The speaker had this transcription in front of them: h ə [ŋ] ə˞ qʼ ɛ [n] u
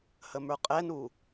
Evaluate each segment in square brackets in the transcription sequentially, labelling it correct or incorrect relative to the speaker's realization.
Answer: incorrect, correct

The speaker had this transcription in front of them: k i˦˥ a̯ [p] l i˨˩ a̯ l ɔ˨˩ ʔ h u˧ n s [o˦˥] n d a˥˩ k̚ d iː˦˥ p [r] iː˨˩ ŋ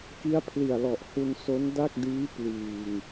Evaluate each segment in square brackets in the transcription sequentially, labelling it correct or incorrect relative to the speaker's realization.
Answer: incorrect, correct, incorrect

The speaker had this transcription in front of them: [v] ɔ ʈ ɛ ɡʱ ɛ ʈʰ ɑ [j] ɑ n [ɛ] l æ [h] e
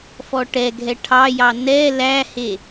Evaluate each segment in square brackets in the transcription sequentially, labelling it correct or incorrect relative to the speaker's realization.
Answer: incorrect, correct, correct, correct

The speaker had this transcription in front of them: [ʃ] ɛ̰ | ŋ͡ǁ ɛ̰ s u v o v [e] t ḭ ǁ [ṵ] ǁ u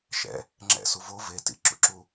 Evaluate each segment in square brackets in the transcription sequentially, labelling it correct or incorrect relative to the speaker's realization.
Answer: correct, correct, correct

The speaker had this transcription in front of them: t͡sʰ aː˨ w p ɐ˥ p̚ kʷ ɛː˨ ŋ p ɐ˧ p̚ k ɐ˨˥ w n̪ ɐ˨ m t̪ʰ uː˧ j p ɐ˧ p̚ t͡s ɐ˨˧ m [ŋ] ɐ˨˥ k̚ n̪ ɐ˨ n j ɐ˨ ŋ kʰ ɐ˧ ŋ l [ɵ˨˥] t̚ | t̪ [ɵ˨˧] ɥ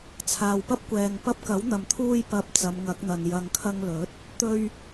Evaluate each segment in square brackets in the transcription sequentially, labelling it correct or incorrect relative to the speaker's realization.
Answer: correct, correct, incorrect

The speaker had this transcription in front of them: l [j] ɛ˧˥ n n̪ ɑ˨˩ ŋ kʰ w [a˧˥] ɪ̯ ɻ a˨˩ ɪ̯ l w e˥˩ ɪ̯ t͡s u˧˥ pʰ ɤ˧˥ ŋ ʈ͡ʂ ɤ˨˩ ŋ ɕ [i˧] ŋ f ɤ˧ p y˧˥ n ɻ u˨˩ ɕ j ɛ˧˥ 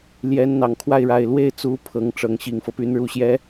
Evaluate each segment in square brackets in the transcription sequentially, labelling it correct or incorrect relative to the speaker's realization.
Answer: correct, incorrect, incorrect

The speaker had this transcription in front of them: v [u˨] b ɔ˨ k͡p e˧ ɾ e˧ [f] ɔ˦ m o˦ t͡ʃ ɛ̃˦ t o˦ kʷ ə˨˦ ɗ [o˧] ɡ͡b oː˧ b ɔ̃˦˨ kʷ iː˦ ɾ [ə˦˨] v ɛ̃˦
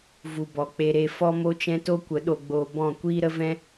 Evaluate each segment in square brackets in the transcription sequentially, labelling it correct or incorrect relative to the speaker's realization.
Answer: correct, correct, correct, incorrect

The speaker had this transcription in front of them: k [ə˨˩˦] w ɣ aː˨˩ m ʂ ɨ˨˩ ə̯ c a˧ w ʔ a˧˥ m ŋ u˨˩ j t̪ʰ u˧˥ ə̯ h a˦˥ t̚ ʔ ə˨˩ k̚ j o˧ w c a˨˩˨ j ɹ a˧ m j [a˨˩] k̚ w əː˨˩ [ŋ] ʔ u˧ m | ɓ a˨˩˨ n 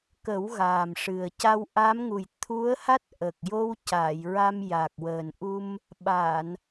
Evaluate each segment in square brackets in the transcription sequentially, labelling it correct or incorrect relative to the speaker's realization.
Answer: correct, correct, incorrect

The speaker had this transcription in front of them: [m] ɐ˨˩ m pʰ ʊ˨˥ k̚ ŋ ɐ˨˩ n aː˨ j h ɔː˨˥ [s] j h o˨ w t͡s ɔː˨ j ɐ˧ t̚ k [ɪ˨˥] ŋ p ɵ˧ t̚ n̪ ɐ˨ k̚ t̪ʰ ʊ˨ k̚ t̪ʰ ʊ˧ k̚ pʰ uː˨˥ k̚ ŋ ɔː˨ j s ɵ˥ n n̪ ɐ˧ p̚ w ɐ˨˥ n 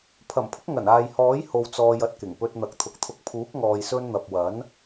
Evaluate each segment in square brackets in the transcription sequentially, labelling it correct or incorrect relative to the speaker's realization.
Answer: incorrect, incorrect, incorrect

